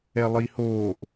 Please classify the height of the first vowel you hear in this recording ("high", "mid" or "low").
mid